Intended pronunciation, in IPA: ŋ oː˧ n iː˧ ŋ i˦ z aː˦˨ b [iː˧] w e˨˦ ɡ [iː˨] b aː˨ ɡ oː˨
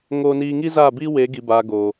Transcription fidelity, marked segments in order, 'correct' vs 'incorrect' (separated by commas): incorrect, incorrect